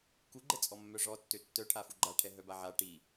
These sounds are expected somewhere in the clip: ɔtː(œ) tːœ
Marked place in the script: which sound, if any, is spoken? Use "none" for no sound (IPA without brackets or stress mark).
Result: ø